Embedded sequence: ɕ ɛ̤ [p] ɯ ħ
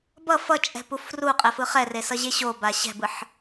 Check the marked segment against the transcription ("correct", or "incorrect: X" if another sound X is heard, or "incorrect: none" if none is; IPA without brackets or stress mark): incorrect: b